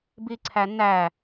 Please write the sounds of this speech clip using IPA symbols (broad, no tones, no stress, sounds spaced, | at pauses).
b i ǀʰ æ n æ